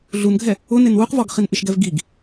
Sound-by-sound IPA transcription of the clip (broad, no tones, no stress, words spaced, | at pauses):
ɮunɡʱɛ | ʊ nenwuqvɔɡ χinʔɪʃɡɛv ɡiɡ